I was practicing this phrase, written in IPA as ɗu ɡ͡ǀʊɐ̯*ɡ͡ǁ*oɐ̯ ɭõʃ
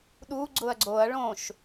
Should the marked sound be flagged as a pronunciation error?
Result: yes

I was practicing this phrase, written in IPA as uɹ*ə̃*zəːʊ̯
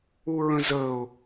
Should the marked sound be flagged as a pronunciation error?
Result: no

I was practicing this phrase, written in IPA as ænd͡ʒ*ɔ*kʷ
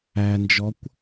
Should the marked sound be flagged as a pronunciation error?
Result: no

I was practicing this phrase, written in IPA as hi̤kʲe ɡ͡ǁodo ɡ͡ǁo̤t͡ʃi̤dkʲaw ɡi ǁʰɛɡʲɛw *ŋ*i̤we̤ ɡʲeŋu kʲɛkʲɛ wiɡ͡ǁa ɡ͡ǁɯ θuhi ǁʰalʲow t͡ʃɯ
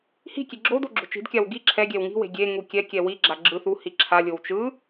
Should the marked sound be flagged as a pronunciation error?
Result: no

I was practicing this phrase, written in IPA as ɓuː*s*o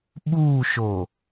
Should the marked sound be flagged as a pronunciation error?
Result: yes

